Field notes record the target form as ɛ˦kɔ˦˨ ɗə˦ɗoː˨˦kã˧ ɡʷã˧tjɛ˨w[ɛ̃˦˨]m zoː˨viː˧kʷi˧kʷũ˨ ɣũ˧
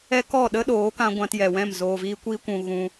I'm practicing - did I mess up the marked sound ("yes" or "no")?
no